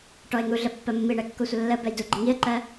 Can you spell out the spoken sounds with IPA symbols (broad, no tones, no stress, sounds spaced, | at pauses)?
ʈ ɔ ɪ̯ ŋ u ɮ ə pː ɜ mː i ɳ ɛ kː o sʷ ə lː ə b ɛ j d u ɡ͡ǃ ə ŋ i ə̯ ǃ ɜ